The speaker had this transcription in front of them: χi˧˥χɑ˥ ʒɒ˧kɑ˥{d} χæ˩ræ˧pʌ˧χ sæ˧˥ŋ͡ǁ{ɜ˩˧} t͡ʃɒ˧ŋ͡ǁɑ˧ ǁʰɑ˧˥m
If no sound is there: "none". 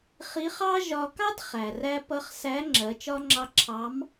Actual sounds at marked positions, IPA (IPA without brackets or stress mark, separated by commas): d, ɜ˩˧